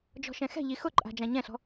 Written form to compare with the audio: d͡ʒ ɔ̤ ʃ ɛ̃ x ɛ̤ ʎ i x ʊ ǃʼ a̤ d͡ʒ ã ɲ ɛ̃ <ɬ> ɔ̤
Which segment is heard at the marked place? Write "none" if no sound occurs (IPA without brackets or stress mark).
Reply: ɬ